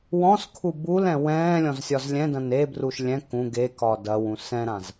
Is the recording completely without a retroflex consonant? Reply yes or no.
yes